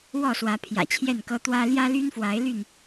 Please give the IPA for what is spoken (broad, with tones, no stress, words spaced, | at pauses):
wɔ˥˨swä˨˦ pʰjä̰˨˩t͡ɕʰjɛ˥˨nkɤ˦ t̪wä˦ ljä˦ly˦nfwa˨˦ɪ̯ ly˥˨n